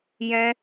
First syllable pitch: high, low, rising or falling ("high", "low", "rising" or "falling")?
high